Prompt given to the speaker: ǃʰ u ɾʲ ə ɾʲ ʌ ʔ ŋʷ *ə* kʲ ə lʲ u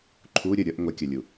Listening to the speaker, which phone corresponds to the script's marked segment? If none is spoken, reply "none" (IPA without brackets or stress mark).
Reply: ɛ